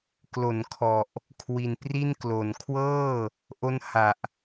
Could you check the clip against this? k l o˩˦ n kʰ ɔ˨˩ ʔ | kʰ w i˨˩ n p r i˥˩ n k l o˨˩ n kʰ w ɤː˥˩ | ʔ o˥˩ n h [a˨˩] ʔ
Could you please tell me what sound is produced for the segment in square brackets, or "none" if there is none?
a˨˩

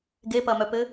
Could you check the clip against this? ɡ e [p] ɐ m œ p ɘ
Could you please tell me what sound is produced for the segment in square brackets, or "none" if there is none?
p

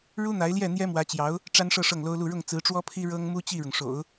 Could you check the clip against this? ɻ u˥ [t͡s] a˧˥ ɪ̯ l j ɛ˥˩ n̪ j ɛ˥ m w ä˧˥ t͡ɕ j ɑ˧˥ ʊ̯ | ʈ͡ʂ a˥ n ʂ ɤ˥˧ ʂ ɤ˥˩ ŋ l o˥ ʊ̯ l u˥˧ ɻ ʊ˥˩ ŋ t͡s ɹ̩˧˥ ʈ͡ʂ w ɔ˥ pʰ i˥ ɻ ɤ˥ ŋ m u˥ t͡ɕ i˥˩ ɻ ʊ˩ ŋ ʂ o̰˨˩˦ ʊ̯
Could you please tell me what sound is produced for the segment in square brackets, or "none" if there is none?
n̪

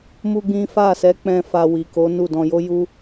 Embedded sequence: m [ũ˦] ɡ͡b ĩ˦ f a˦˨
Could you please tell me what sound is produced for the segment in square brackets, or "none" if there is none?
u˦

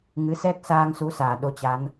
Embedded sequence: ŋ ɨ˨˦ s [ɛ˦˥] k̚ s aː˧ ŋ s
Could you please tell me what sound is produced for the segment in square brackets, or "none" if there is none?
ɛ˦˥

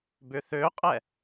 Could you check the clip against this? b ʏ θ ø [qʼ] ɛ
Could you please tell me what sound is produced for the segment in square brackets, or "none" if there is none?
qʼ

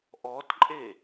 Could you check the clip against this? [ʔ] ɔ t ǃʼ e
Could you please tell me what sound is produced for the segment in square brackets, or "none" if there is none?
ʔ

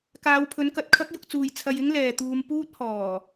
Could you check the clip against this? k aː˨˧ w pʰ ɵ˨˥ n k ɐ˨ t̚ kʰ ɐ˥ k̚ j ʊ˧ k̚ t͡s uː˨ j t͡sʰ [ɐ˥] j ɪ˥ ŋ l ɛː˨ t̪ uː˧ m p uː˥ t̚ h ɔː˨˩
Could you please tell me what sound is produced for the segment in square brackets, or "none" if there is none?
ɐ˨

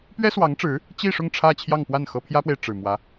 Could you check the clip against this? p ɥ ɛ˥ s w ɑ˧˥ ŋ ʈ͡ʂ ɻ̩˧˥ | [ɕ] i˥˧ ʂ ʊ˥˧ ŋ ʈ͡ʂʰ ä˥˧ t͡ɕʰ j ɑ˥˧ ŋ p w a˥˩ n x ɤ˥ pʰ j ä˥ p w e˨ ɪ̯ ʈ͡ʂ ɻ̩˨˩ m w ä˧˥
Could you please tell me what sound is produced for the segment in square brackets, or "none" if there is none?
t͡ɕ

